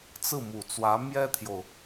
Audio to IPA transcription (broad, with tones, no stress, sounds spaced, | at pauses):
t͡s ɹ̩˥˩ m u˨˩ t͡s w ä˧˥ m j ɛ˥ t̪ʰ j o˨ ʊ̯